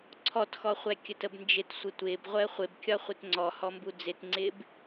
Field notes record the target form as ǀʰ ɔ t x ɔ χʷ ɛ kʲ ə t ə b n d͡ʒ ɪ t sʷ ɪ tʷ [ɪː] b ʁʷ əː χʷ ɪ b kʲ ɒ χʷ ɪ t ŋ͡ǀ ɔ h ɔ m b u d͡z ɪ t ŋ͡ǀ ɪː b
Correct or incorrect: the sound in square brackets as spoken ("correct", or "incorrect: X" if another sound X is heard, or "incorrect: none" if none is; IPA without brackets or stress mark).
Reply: correct